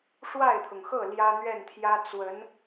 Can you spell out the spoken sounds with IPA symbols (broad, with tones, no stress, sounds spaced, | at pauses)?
ʂ w a˥˩ ɪ̯ t̪ʰ ʊ˩ ŋ x ɤ˥˩ l j ä˥ n̪ ɥ ɛ˥˩ n t̪ʰ j ä˥ t͡s w ə˧˥ n